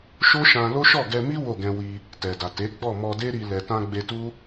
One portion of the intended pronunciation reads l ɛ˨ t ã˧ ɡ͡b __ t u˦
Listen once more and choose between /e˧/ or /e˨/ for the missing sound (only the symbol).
e˧